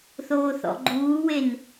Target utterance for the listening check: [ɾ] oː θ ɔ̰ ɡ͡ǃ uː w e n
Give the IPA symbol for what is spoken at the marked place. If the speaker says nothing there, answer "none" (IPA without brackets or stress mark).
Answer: θ